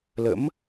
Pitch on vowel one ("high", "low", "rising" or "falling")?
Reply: rising